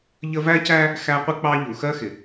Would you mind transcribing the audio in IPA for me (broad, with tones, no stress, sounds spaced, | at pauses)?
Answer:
ʎ ə˦ v æ˥ c æ˥ | x æ˦ qʷ ɪ˥ k͡p ɑ˦ ʎ u˩ x ɜ˦ x ɪ˩